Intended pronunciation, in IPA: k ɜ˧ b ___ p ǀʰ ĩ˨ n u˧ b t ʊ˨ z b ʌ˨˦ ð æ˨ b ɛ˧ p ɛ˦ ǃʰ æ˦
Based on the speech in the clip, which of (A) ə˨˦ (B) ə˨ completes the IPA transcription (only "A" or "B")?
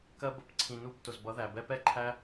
A